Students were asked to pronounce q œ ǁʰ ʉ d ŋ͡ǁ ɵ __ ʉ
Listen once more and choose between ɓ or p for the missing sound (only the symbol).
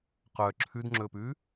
p